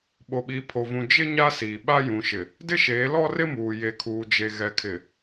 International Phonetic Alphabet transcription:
ɓ o˨ ɓ iː˨ pʰ o˨ v ũ˨ d͡ʒ ɪ˦ ɲ a˦ s iː˨ ɓ a˦ j ũ˨ ʃ ɪ˨ | d ɪ˦ ʃ eː˨˦ l ɔ˦ r ɪ˦ m uː˨ j e˨ kʰ uː˨ d͡ʒ e˨ ɣ ɛ˨ kʰ ɪ˨

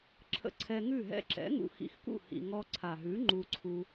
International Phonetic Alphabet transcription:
ǁʰ ə̰˧ ǀʰ ɛ˧ ŋ ʉ˦˨ ɦ ɛ̰˧ ǁ ɛ̰˨˦ ŋ ṵ˧ x ḭ˧ x k ṵ˦˨ h ḭ˨ ŋ ɔ˧ ǀʰ a˨ ɦ ʉ˨˦ ŋ͡ǃ u˧ ǀʰ u˧

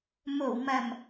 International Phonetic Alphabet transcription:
m o˨˩ w m ɐ˨˩ m

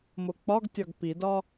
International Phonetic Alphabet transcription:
m o k͡p ɒ ɡ tʲ ɒ ɡ p i d ɒ

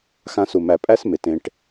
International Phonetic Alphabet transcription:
x ã˦ s u˨ m æ˨ pʼ æ˦ s m ɪ˩ t ẽ˨ ʈ

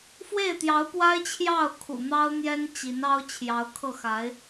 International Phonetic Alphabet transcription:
f w e˥˩ ɪ̯ t̪ j ɑ˧˥ ʊ̯ p w a˥ ɪ̯ t͡ɕʰ j ɑ˥˩ ʊ̯ kʰ ṵ˨˩ n̪ ɑ˥ ʊ̯ n̪ j ɛ˥ n t͡ɕ i˧˥ n ɑ˥ ʊ̯ t͡ɕʰ j ɑ˧˥ ʊ̯ kʰ ɤ˥˩ x a˧˥ ɪ̯

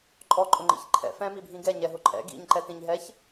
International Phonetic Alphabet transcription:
ǃʼ ɔ ǃʼ ʊ ŋ͡ǃ ḭ ç ǃʰ ɛ̰ f ɛ̃ m i bʱ ĩ ɡ ɛ ɲ ɛ ɦ ʊ ǃʼ ɛ̰ ɡ ḭ ɲ ǃ ɛ t ĩ ɲ ɦ ɛ ç

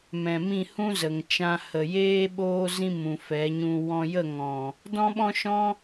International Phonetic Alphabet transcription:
m ɛ̃˨ m ĩ˦˨ h ũ˦ z ə˨ ŋ t͡ʃ ã˧ h ə˨ j eː˦ ɓ oː˦ z ĩ˦ m ũ˨ f ɛ˨˦ ɲ ũ˧ w ɔ̃˧ j ə˦˨ ŋ ɔ̃˨ | d ɔ̃˦ ɓ ɔ̃˦ ʃ ɔ̃˦

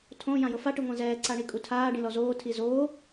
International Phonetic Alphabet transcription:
tʰ õ j ã j ɤ f a ʈ ɯ ŋʷ ã z ɛː ǀ a ɳ i kʼ u tʰ aː ɖ ĩ l ɔ z oː tʰ i z oː

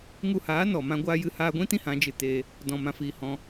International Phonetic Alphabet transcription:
ŋ u˧ h aː˨˦ n ɔ˨ m ã˦ ɡʷ aː˦ j ɨ˦ h aː˧ ɡʷ ĩ˦ t ĩ˦ h ã˨˦ d͡ʒ ɨ˧ t eː˧ | d ɔ̃˨ m ã˨ f iː˨ h ɔ̃˦

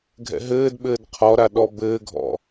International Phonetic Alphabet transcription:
ɡʱ ɛ̰ ɦ ɘː d ɓ ɘː d qʰ ɔ ɾ a ɗ ɔ b ɘː ɡʱ ɔ̰

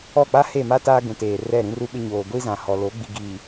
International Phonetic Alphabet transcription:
ɔ˦˨ k͡p a˦ h e˦˨ m a˦ t aː˦ ɡ ũ˨ t eː˨ r ɛ˦˨ ɾ ĩ˦ r u˦ ɓ ɪ˦ ɲ oː˨ ɡʷ i˦ z ã˨ h ɔ˨ l o˨˦ ɡ͡b i˨ ɡ i˨

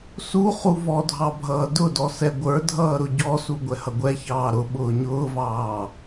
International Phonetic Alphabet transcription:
s u χ u v ɔ dʱ ɑ bʱ ʌː d ʊ d ɔ s ɛ ɡʷ ə˞ dʱ ʌː ɾ ʊ ɟ ɔ s u ɡʷ ɛ h ʌ ɡʷ ɛ ç ɑː ɾ ʊ ɓ ʊː ɲ ʊː v ɑː

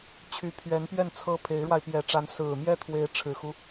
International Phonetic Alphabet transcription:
t͡ɕʰ y˧˥ pʰ ɥ ɛ˧˥ n p ɥ ɛ˥˩ n t͡sʰ ɤ˥ pʰ e˧˥ ɪ̯ ɻ w a˧ ɪ̯ p j ɛ˧˥ ʈ͡ʂ a˧˥ n s ɹ̩˨˩ m j ɛ˥˩ t̪ʰ w e˧˥ ɪ̯ ʈ͡ʂʰ ɻ̩˨˩ x u˦

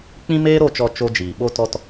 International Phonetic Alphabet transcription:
k͡p ĩ˦ m eː˦ ɾ o˦˨ t͡ʃ ɔ˧ t͡ʃ o˦ d͡ʒ iː˨ ɓ o˧ t ɔ˧ t

